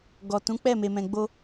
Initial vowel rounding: rounded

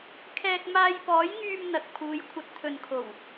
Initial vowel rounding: unrounded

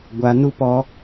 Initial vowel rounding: unrounded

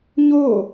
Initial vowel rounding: rounded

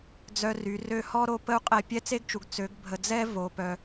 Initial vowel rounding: rounded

